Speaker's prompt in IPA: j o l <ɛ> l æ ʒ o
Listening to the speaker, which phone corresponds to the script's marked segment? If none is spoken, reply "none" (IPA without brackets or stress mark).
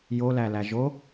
æ